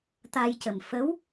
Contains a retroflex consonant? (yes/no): no